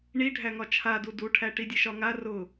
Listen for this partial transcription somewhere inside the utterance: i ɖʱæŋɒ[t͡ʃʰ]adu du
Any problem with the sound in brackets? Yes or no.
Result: no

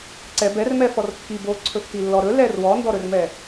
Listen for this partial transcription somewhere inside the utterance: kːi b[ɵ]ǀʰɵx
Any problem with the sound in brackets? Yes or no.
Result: yes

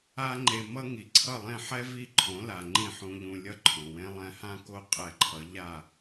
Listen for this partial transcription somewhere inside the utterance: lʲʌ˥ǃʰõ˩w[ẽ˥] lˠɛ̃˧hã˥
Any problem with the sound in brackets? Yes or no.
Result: no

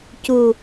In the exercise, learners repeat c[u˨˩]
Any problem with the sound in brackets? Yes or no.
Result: no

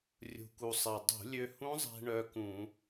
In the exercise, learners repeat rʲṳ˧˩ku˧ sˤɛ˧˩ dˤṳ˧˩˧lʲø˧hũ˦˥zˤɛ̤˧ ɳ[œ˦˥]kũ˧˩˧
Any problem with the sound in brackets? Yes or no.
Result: no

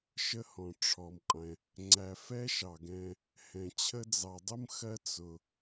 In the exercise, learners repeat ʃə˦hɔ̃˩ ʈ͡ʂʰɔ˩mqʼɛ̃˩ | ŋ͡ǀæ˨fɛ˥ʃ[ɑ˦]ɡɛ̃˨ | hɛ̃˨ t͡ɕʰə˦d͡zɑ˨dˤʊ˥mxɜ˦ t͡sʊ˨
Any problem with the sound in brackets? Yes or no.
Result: yes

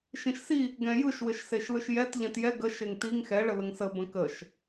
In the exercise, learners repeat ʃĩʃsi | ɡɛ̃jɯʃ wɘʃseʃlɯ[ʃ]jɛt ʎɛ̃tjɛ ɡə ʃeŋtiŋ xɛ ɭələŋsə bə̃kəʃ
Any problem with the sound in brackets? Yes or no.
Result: no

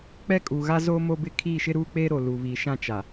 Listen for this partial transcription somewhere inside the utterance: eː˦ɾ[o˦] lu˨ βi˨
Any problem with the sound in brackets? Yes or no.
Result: yes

